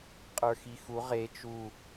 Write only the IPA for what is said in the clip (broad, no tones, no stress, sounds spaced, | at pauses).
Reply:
qʼ ə˞ x i x u ʁ e t͡ʃ u